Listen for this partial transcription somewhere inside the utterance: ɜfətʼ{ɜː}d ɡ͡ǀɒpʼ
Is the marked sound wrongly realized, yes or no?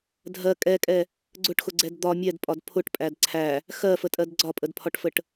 yes